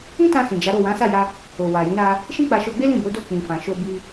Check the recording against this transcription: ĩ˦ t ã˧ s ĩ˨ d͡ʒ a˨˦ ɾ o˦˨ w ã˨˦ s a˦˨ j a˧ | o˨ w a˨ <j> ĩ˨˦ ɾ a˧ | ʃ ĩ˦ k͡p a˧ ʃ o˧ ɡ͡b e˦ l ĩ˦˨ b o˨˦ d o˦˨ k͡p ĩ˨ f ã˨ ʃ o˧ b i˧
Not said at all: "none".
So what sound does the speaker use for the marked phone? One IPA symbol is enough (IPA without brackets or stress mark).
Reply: j